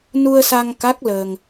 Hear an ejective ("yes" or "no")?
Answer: no